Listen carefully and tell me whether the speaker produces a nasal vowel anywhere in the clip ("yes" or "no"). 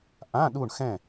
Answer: yes